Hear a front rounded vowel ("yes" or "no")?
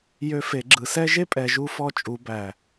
yes